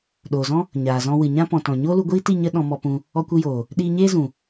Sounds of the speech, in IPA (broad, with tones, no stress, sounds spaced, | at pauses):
ɗ oː˨ z ɔ̃˦ | ɲ aː˨ z ɔ̃˧ w ɨ˨ ɲ ã˦ p ɔ̃˨ t ɔ̃˨ ɲ oː˦ l u˧ ɡʷ iː˦ t i˦˨ ɲ ə˦ ɗ ɔ̃˧ m ɔ˧ p ũ˧ | ɔ˧ kʷ ɨ˧ j oː˨ | ɗ iː˧ ɲ eː˦ z ũ˨